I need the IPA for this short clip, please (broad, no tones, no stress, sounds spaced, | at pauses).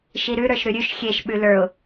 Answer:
ʃ i ɾ ʉ ɾ ə˞ ʃ ɾ ʉ ɾʲ ʉ ʃ xʲ e ʃ ɓ ʉ l ə˞ ʊ̯